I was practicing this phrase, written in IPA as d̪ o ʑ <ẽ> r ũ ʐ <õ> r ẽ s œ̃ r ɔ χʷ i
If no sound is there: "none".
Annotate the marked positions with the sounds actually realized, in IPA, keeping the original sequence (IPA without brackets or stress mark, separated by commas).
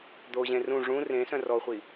ẽ, ũ